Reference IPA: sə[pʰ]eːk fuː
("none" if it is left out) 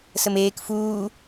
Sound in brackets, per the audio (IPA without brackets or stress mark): m